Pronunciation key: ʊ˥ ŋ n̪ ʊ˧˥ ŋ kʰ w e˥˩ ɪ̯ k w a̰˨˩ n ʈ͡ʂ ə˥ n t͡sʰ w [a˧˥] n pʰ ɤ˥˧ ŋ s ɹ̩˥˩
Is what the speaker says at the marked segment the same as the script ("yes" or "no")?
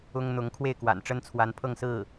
yes